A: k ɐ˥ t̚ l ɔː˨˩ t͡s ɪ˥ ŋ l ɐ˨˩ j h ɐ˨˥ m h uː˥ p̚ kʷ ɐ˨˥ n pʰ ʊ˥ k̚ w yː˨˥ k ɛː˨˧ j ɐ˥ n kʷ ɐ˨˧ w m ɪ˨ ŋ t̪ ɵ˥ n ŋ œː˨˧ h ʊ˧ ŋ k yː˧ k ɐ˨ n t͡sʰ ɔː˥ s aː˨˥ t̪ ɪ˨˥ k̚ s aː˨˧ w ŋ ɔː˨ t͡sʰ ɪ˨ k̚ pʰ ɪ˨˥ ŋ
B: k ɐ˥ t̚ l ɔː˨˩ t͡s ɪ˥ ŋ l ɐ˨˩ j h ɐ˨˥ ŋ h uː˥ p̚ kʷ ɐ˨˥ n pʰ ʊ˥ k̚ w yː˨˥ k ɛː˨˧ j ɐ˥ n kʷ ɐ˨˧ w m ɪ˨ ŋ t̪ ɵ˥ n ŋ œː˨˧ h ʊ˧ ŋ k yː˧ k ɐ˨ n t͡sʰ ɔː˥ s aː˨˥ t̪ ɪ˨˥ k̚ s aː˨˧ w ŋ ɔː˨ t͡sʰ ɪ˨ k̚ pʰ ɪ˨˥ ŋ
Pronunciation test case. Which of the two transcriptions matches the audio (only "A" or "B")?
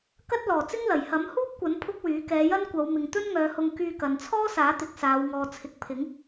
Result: A